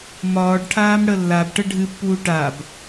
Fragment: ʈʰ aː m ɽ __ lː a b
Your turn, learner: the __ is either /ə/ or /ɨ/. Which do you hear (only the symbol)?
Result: ə